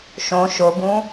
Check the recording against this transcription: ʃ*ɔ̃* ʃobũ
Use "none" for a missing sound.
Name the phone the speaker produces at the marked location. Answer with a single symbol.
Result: õ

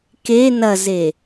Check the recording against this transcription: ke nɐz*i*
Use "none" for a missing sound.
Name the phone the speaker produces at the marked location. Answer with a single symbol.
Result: e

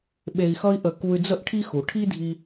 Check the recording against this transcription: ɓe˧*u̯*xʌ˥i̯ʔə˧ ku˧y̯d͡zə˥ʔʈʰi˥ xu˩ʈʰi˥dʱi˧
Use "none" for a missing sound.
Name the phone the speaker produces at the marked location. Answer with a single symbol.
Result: i̯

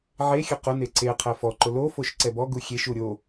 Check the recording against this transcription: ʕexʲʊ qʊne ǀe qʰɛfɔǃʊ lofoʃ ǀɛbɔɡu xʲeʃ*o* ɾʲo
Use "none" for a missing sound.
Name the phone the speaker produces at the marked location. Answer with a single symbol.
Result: u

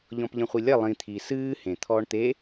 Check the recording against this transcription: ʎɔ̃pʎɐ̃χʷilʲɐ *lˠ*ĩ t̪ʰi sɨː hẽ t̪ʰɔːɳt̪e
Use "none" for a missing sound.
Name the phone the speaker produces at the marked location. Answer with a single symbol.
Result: lˠ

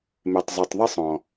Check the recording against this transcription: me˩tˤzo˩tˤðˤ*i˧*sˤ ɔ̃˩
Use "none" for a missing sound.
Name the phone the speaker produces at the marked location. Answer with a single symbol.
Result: e˧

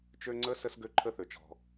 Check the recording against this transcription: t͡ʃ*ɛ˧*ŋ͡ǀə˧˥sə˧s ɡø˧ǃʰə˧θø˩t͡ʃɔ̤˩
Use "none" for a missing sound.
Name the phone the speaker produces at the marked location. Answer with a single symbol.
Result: ø˧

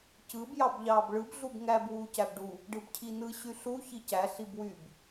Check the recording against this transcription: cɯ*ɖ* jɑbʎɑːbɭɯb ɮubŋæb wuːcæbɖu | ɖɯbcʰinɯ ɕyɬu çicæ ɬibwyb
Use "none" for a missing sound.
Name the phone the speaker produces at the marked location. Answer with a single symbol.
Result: b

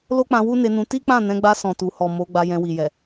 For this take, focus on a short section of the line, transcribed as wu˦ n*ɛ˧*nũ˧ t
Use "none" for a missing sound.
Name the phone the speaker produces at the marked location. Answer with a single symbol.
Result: e˧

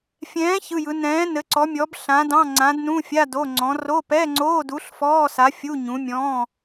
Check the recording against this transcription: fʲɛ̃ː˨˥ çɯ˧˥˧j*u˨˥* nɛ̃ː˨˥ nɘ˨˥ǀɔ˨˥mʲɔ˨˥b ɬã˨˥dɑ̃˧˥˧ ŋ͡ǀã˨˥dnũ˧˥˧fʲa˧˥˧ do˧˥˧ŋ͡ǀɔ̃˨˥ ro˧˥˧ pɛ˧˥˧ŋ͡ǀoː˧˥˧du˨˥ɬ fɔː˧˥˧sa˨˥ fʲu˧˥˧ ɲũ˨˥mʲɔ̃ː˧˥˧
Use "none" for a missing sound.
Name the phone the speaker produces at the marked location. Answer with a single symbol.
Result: ɯ˨˥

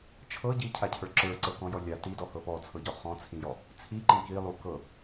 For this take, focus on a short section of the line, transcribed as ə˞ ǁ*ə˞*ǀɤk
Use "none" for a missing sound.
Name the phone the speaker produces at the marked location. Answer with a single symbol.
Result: ə˞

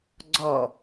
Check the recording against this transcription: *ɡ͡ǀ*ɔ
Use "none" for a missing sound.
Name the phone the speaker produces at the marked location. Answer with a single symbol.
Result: ɡ͡ǀ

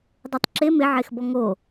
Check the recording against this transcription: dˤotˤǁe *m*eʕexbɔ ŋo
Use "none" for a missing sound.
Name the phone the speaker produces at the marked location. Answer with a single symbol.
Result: m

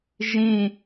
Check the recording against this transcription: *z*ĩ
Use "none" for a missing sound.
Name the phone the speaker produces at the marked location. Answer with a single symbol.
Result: ʒ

